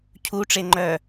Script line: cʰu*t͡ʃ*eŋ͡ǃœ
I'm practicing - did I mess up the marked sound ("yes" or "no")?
yes